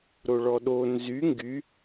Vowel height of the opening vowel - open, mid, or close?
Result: mid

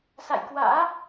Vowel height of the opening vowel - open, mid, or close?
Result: open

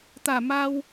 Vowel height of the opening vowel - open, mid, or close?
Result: open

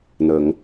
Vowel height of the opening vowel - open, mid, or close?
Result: mid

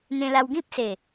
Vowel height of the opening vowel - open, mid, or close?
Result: mid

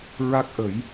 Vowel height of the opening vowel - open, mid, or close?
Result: open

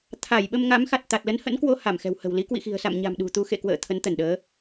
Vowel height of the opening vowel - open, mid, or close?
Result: open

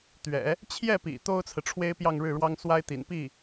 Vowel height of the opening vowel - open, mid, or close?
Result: mid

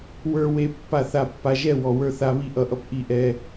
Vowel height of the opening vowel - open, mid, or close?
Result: mid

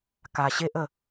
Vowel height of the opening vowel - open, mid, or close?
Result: open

